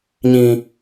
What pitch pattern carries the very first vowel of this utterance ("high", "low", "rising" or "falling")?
low